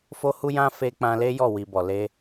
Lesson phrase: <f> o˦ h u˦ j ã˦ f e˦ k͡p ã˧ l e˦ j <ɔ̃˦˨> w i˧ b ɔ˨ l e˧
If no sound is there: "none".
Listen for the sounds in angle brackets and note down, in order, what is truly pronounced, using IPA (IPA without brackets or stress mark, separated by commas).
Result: f, ɔ˦˨